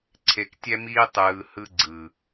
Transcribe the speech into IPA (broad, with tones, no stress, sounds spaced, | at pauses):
ǀʰ e˨ k tʲ ɛ˧ m iː˧ tˤ ɯː˨ h ɯ˧ ɡ͡ǀ ɯ˨